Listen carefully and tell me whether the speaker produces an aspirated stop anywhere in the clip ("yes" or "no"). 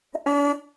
no